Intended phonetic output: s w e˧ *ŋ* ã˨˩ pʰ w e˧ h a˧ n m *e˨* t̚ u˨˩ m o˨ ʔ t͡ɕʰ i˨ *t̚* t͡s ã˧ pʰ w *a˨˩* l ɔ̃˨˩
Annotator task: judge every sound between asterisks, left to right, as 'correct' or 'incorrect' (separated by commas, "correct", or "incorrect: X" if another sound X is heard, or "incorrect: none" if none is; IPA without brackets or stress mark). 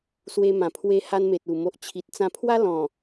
incorrect: m, correct, correct, incorrect: a˦